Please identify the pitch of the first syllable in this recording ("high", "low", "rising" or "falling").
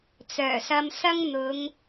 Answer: low